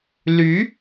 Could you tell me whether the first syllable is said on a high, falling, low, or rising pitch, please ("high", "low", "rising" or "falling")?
rising